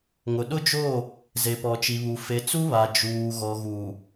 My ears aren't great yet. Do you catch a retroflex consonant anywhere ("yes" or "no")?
no